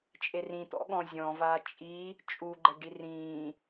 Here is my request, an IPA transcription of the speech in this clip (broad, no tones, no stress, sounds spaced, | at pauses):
t͡ʃʼ e r ĩ t̪ ɔ̰ ɠ ɔ̃ zʲ ɔ̃ v a t͡ʃʼ i | t͡ʃʼ u ɡ͡ǃ ɛ ɖ i r ĩː